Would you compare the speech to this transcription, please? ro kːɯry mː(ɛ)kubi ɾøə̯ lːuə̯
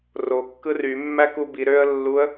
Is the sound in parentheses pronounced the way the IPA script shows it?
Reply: no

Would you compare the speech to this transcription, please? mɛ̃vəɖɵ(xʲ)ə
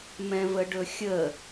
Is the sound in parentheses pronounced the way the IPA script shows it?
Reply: yes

